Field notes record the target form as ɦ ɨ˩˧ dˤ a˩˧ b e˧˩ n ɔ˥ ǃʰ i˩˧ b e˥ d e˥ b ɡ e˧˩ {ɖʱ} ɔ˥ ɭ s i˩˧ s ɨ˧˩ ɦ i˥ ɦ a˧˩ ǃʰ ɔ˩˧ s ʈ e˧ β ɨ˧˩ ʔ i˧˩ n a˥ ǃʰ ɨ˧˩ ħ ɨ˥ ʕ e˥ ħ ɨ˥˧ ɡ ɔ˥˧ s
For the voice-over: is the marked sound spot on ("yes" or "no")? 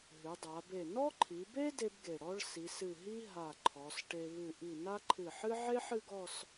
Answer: no